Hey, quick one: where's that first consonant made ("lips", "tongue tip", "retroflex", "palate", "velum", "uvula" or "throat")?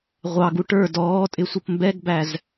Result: uvula